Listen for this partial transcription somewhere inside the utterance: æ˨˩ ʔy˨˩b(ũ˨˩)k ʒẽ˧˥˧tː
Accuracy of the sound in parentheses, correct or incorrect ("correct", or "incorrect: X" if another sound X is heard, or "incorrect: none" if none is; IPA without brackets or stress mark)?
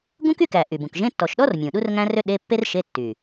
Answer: correct